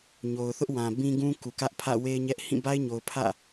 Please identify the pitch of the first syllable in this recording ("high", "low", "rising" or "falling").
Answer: low